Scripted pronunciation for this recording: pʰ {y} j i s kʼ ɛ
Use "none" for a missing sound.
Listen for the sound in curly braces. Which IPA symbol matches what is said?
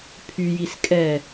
y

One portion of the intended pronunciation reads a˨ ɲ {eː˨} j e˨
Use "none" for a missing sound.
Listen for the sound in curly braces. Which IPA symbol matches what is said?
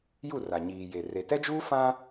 iː˨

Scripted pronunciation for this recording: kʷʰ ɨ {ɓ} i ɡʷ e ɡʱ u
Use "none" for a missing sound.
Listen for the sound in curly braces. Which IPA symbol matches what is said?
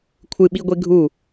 ɓ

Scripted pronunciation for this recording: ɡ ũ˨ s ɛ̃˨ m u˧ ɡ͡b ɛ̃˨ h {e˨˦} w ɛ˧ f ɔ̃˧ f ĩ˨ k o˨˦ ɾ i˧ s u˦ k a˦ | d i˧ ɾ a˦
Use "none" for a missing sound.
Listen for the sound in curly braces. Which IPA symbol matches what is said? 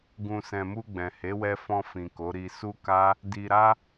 e˨˦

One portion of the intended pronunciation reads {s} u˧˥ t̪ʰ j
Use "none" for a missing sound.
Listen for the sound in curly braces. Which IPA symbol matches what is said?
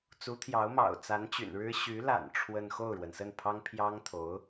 t͡s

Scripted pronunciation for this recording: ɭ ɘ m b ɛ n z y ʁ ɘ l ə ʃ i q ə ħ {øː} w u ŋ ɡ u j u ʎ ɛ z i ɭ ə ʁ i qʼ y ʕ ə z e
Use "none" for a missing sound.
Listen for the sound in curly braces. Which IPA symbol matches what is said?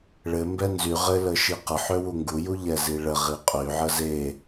ø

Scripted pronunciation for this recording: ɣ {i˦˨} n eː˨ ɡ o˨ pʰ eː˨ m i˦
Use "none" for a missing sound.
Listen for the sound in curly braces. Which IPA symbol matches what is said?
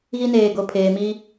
i˦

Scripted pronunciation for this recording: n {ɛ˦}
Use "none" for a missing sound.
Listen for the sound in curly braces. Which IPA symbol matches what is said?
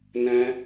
ɛ̃˦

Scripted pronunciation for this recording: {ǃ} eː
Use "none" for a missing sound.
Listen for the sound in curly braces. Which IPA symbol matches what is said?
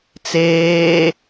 t͡s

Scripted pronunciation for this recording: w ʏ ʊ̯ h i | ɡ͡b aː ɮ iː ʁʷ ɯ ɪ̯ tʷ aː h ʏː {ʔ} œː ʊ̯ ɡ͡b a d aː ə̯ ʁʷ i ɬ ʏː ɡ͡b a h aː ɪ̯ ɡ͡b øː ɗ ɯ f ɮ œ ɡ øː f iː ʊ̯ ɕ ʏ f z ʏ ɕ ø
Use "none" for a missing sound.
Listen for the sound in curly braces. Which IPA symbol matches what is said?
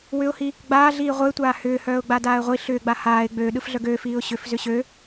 h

